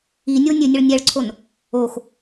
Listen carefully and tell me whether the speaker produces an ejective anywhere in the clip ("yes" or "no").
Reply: no